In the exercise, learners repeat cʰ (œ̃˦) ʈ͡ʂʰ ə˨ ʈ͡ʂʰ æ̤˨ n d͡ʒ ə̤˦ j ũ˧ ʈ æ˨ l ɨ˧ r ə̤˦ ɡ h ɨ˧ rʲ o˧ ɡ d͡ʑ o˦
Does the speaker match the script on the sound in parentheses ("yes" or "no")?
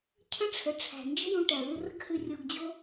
no